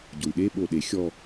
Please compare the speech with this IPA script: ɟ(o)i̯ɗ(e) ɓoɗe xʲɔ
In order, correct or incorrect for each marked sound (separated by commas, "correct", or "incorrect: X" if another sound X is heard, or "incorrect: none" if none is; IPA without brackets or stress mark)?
correct, correct